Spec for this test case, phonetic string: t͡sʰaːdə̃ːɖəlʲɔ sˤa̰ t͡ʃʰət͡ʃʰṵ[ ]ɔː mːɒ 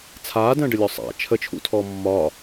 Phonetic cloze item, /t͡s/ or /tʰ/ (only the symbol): tʰ